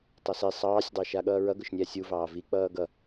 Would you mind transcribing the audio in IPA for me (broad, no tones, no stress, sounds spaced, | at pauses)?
tˤ ʌ s i sˤ ɑː sʲ dˤ e ʃ a ɠ ʌː ɹ ʌ ɡ ʊ ʃ nʲ æ sʲ u v ɑː v i k͡p ʌː ɡ ʌ